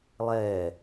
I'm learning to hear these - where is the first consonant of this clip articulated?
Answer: tongue tip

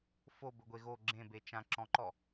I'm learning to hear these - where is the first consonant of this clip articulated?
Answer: lips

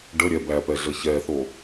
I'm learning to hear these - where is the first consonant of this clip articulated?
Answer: retroflex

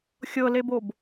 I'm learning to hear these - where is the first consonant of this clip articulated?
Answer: velum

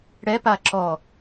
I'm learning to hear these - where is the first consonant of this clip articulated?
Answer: retroflex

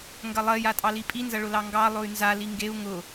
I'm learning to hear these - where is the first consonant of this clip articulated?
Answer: velum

